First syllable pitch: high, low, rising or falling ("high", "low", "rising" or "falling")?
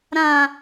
low